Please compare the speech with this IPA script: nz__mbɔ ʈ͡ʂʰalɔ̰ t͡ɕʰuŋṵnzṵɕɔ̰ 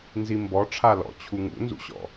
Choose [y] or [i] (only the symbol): i